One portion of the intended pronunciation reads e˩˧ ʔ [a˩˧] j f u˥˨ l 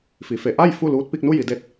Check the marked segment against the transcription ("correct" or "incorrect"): incorrect